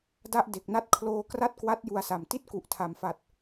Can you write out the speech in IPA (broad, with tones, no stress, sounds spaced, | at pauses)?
d a˥˩ ʔ d e˨˩ k̚ n a˥˩ t̚ kʰ l oː˧ k r a˥˩ t̚ k w a˦˥ t̚ j u˧ a̯ s a˨˩ m t i˥˩ t̚ k u˨˩ ʔ tʰ a˨˩ m f a˨˩ t̚